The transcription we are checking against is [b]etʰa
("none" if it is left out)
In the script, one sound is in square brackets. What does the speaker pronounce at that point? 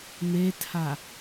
m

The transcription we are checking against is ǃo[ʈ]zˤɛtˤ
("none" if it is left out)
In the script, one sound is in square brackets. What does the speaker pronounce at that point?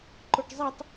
ʈ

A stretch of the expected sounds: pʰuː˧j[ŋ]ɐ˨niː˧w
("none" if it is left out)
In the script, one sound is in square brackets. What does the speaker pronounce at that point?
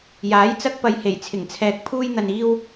n̪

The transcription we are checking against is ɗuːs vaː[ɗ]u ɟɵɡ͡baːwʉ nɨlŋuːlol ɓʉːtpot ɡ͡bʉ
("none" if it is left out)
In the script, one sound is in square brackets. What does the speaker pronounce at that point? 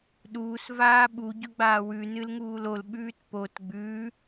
ɓ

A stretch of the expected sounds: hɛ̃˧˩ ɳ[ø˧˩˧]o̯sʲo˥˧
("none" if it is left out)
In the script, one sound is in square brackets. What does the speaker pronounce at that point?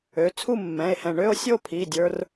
ø˥˧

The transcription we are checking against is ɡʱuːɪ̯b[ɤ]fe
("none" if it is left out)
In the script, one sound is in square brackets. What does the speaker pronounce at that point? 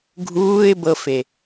ɤ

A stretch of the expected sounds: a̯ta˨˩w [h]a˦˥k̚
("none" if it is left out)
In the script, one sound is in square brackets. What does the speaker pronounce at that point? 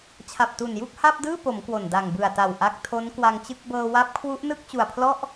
ʔ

